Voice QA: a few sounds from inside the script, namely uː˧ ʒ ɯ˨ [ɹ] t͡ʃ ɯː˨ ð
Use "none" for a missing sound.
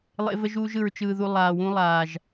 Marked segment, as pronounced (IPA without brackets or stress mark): ɹ